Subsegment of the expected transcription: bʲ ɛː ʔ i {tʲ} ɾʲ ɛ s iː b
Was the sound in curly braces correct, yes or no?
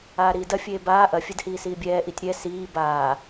yes